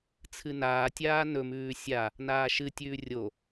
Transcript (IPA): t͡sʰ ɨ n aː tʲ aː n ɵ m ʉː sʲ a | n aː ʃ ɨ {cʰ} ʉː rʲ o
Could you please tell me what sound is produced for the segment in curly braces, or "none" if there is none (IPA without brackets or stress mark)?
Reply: tʲ